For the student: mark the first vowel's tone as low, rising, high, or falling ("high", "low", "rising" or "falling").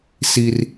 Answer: high